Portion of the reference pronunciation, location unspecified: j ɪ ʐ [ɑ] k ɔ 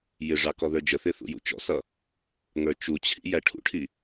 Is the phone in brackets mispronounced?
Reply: no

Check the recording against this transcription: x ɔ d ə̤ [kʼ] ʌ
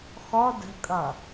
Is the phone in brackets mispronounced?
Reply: no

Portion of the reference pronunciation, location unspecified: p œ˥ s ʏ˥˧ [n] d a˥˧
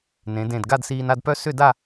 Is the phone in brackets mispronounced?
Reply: yes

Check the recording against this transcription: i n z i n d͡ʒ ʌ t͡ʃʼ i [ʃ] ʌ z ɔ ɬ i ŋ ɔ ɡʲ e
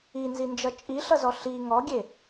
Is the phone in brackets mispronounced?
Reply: yes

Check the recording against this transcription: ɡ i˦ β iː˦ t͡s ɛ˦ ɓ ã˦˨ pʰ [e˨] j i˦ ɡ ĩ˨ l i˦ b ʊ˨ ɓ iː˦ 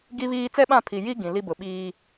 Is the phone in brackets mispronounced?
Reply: yes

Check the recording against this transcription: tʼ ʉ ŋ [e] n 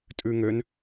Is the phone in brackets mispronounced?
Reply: yes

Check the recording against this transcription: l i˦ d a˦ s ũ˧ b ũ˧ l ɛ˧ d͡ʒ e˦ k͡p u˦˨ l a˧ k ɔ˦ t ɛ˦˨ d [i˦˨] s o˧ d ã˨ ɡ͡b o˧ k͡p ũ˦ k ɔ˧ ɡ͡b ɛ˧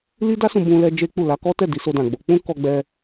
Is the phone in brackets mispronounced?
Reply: yes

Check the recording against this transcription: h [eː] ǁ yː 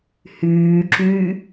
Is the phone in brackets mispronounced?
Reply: yes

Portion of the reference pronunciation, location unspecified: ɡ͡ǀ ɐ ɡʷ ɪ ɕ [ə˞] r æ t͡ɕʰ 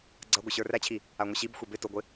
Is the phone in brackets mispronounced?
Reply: no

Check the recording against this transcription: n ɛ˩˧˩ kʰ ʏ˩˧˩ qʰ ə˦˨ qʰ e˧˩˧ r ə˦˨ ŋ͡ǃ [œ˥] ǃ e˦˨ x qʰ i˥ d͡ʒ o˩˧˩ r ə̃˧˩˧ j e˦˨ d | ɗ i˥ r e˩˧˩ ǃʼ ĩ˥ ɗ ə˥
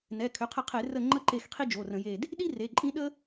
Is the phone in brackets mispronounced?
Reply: yes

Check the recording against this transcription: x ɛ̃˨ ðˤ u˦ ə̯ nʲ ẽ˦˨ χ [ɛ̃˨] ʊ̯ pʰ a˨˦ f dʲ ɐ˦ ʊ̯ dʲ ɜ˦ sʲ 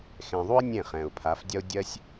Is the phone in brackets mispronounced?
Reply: no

